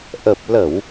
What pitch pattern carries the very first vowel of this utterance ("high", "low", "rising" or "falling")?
low